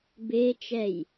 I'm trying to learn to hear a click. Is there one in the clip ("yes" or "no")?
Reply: no